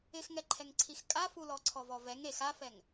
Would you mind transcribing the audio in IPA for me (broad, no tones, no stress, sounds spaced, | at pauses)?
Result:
ɪ x ŋ ɛ ǃʰ ɛ ŋ ǀʰ i x kʼ a f u l ɔ ǀʰ ɔ v ɔ v ɛ ŋ e x a f ɛ ŋ